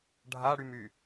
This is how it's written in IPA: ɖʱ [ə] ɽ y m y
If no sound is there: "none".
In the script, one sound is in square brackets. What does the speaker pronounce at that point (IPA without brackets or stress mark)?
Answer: a